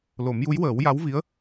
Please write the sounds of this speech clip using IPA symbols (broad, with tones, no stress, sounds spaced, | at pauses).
l o˨˩˦ m j u˧˥ j w əː˨˩˦ w j a˧˥ w v i˧˥ ə̯